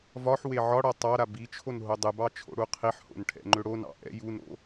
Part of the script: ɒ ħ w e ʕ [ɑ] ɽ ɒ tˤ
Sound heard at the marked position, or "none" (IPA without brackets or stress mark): ɒ